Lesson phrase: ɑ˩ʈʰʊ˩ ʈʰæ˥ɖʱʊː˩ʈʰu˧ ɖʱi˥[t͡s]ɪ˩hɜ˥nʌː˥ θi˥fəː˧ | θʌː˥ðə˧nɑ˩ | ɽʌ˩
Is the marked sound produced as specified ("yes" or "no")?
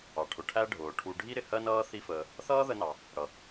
no